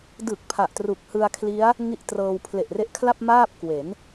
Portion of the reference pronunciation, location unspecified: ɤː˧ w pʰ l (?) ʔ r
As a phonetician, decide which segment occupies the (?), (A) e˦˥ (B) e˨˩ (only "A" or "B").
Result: B